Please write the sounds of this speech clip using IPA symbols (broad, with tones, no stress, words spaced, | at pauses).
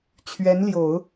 t͡ɕʰɥɛ˧˥nljo˨˩˦ʊ̯